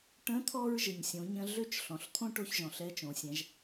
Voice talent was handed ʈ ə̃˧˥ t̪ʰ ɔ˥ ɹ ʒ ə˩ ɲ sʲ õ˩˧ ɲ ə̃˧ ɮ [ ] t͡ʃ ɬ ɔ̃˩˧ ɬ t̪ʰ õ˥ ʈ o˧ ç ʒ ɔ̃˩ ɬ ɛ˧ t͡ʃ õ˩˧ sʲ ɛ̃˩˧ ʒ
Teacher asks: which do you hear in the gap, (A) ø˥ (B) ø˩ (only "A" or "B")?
A